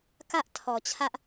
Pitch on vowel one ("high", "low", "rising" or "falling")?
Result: high